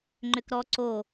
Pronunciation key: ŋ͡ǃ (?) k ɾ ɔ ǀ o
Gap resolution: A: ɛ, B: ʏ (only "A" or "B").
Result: B